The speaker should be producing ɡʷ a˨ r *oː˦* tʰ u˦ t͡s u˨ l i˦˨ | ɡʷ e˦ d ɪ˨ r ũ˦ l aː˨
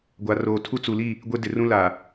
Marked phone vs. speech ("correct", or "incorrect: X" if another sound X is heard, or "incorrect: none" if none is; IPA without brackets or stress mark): incorrect: oː˨